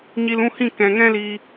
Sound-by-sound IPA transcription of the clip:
ɲi˧l ũ˦˨hĩ˦˨ kɛ̃˨ŋɛ̃˦liː˧

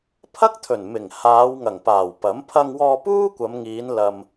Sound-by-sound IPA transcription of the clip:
pʰɐ˥k̚t̪ʰɵ˨˩nmɪ˨˩ŋ haː˨˧wŋɐ˨˩ŋpaː˨˩w pɐ˨˥m pʰɐ˧ŋwɔː˧ puː˥kʷɐ˨˧mŋiː˨˧n lɐ˨m

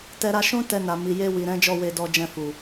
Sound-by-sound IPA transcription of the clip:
tɛ˧ɾa˧ʃũ˦tɛ˧ na˨mi˨ je˧wi˨ ɾɛ̃˨˦d͡ʒɔ˦˨we˧ dɔ˧d͡ʒɛ̃˧fu˨

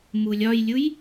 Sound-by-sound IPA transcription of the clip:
mulʲɒjlʲuj

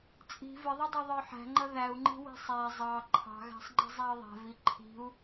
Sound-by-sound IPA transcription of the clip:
t͡sʼi̤ vɪðˤʊdˤə˞ ðˤə˞ħæ̤ŋ͡ǃʌ ðæu̯ŋ͡ǃi̤ wi̤sˤæ zˤɑ ǃʰɑ̤ɣæ̤sˤ ŋ͡ǃi̤zˤæi̯ðˤæ̤vi ǃʰi̤u̯

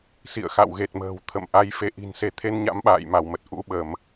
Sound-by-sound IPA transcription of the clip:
sḭ˧˨ə̯xa̰˧˨wɣe˨˩t̚ mə̤ː˨˩w t̪ʰə̰˧˨m ʔa˨˦jfe˨˦ʔi̤˨˩nse˨˦ t̪ʰe˧n ɲa̰˧˥mɓa̰ː˧˨jma˧˩wmə˨˩t̚ ʔṵ˧˥ɓə˧˩˨m

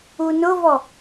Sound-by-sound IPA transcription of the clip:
unʊvɔ

